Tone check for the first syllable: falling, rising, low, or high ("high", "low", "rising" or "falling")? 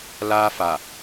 high